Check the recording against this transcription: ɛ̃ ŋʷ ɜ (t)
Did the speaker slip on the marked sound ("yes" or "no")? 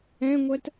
no